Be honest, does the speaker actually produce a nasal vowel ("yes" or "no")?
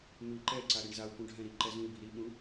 yes